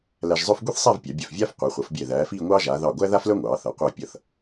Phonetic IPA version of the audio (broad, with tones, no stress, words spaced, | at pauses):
læ˧ʒzˤœ˥f ɡʷi˥θsˤæ˥˧v pʲɑ˩˧bʲœ˧˩fvʲaː˥f qʷɛ˩˧χʷʌ˩˧fbʲɛ˧˩ ðæː˩˧fiː˥˧ŋʷɑː˥ʒaː˩˧ ðɑ˧˩ɡʷæ˥ ða˥flœ˥ŋʷɑː˩˧θʌ˩˧ qʷɑ˧˩pʲʌ˧˩θ